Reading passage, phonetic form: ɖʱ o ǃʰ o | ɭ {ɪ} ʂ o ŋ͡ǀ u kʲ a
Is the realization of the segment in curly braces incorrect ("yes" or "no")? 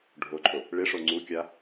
no